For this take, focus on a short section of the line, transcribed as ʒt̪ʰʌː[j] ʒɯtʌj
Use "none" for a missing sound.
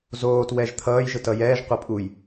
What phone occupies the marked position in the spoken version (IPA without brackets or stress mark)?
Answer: j